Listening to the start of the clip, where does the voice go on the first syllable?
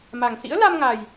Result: low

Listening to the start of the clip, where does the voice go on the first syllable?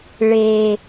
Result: low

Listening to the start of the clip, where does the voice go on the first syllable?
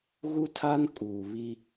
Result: high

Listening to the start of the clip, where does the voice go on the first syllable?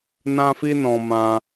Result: high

